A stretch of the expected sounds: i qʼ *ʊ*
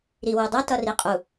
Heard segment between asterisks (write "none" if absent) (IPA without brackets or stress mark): u